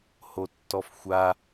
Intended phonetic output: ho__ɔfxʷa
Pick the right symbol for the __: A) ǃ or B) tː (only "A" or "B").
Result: B